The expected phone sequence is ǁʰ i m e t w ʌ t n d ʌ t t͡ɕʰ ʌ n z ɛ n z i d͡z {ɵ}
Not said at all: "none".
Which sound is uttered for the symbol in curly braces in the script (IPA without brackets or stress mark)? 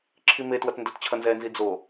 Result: o